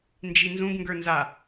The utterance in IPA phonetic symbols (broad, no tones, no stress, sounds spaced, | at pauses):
n d͡ʒ i n z ũ ɡ ŋ ɡ ə˞ n z a